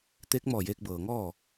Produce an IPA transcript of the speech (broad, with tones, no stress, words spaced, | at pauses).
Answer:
t̪eː˧˥k̚mɔː˧˩jeː˧k̚ bɤː˩ŋɔː˥˨